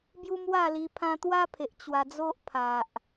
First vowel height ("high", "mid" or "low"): high